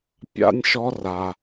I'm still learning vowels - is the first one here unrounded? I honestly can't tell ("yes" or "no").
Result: yes